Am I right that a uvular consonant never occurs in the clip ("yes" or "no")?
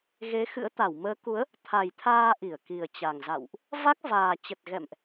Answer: yes